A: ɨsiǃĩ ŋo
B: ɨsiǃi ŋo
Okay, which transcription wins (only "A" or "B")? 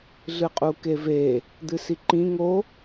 A